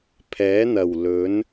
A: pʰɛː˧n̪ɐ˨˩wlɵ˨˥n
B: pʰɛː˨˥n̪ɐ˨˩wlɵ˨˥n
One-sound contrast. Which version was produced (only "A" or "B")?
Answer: B